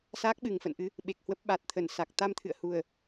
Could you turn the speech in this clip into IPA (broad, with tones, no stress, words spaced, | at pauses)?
saː˦˥k̚ɓɨ˨˩ŋfə̰˧˨nʔɨ˨˦ | ɓe˨˩k̚hwə˦˥p̚ ɓa˨˩t̚t̪ʰə˧˩n sa˨˩k̚ t̪a˧mt̪ʰɨ̰˧˨ə̯hu˨˩ə̯